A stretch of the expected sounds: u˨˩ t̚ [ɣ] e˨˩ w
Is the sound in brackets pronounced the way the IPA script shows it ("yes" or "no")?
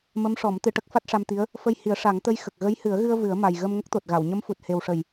no